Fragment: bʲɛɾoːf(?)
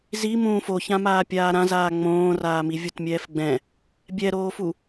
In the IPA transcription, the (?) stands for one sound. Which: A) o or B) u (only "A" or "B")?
B